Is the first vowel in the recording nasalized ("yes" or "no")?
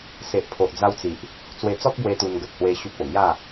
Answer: no